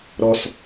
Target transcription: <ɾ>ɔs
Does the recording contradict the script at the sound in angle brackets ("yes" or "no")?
no